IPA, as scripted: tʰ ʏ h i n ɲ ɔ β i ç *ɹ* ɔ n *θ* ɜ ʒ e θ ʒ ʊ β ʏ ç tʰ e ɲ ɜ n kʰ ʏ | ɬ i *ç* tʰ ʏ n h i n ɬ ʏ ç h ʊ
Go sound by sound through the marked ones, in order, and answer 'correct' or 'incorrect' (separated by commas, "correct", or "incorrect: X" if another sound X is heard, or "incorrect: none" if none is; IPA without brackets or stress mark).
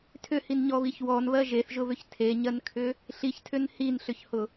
incorrect: w, incorrect: β, correct